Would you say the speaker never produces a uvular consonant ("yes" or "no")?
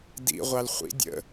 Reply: no